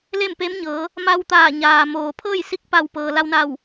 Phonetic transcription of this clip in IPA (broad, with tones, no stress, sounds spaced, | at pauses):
l e˥˨ m p e˧˥ m ɲ ɤː˩˧ | m a˧ w t̪ aː˧˩ ɲ aː˩ m oː˩ pʰ ɤː˥˨ j s i˧˥ k̚ p a˧˩ w p ɤː˩ l a˧ w n a˧˩ w